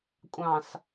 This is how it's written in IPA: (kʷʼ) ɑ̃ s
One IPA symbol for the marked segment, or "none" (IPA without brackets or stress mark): kʷʼ